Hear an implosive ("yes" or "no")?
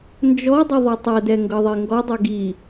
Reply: no